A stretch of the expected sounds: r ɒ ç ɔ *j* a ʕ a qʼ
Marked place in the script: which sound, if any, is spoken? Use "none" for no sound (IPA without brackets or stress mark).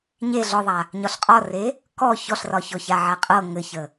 ç